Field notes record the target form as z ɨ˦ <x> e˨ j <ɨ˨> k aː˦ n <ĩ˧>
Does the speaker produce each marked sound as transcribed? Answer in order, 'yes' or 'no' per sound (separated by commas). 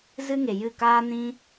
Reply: no, no, no